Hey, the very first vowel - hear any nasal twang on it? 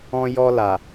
yes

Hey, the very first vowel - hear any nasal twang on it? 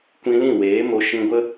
yes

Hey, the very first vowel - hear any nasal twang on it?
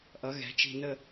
no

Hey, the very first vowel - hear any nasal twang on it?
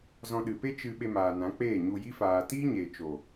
yes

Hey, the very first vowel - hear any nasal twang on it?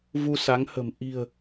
no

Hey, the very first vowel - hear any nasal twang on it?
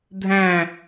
yes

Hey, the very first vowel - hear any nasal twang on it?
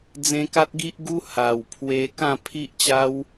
yes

